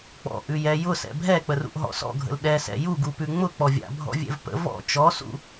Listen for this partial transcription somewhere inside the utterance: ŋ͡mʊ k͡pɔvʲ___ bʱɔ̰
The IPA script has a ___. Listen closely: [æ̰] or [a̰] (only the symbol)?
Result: a̰